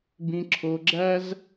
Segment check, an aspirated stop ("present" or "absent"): present